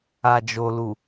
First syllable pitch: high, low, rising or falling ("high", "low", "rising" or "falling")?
low